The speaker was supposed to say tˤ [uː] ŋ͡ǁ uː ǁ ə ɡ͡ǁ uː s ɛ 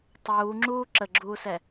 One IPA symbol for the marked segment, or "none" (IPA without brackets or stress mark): uː